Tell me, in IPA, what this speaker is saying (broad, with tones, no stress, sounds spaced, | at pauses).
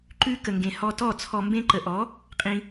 ǃ ʉ˧ k ə˨ ŋ ɡ ẽ˨ h ɔ˧ t ɔ˦˨ t͡sʰ ɔ˨ m b ẽ˧ ǃ ə˨ ʔ ɔ˨˦ | qʼ ĩ˧